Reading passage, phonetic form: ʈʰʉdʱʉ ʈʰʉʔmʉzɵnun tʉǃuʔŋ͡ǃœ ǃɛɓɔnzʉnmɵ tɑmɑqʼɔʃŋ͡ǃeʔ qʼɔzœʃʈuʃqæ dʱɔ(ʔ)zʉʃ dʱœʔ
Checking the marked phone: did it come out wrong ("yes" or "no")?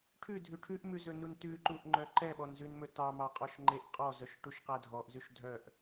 no